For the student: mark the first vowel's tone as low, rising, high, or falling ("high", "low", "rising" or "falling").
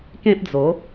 high